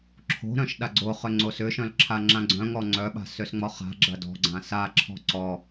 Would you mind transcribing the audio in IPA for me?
ǁʰo̤ɾœ̃ʃ ɗaɡ͡ǀoχʏ ŋ͡ǀosʏʃœ̃l ǁʰaŋ͡ǁãɡ͡ǀœ̃ŋɔ ŋ͡ǀœɓa̤ søsŋ͡mɔχa̤ɡ͡ǁɐ dɔ̤ɡ͡ǀã saǁʰɔ̤ ǀɔ

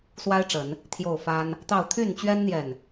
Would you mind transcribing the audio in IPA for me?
swa˦ɪ̯ʈ͡ʂə˨˦n | t̪ʰjo˥˨ʊ̯ fa˦n | t̪ɑ˥˨ʊ̯ t̪ʰy˥˨nt͡ɕɥɛ˦nn̪jɛ˨n

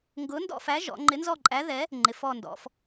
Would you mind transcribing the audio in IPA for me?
ŋɡʊ˨˥ndɔ̰˦˨fæ˨˥ʒɔ̰˩˧ ŋ͡ǃɪ˨˥nzɔ˦˨ǃʼæ˨˥ðɛ˨˥ | ŋ͡ǃɪ˩˧fɔ˦˨ndɔ̰˩˧f

